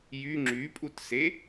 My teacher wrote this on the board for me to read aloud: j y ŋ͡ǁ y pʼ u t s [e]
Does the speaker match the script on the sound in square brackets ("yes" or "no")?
yes